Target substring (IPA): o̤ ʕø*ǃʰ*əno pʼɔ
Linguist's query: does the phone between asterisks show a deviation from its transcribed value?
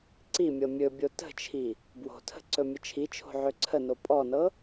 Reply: yes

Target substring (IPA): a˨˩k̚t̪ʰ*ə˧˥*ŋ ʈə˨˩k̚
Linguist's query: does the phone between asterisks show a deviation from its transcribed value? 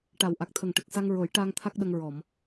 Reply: yes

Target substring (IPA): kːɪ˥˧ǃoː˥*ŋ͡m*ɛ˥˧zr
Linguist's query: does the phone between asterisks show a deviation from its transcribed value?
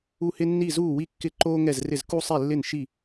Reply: yes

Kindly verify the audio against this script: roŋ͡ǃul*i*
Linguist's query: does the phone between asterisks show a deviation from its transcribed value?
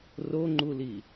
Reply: no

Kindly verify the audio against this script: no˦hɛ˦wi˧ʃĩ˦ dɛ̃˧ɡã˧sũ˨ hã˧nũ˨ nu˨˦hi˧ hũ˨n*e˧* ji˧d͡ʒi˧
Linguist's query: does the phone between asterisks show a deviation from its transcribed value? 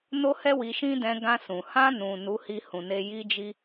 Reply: no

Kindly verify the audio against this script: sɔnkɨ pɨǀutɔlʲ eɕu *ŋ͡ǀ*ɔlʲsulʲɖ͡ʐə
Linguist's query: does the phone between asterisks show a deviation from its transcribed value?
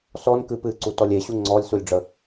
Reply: no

